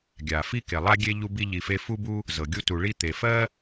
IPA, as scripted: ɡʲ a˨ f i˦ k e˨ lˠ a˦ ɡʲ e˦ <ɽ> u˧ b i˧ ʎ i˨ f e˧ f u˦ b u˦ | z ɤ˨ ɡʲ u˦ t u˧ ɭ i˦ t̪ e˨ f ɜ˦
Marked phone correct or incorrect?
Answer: incorrect